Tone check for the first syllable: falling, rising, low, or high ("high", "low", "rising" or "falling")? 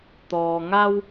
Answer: low